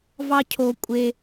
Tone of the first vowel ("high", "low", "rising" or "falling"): low